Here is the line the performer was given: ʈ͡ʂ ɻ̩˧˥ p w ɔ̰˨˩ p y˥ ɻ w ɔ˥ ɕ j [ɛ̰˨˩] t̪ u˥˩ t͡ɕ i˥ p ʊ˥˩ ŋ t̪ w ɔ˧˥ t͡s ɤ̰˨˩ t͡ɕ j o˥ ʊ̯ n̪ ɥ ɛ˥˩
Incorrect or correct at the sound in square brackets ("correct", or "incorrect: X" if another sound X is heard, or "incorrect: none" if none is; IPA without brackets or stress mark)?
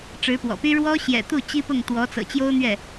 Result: correct